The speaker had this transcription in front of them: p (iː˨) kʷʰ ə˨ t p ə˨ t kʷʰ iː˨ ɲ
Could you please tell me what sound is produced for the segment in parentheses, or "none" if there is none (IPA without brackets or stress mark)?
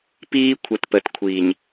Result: iː˦